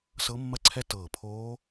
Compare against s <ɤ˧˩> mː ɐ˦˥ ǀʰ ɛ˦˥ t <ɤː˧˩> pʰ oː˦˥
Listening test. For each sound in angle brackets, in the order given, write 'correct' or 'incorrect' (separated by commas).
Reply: incorrect, correct